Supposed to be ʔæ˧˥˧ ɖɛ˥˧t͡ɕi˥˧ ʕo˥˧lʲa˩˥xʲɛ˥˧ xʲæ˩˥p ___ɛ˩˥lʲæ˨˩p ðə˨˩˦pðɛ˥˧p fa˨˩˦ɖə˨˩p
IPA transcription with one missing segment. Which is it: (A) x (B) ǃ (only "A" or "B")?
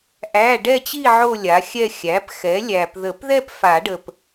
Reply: A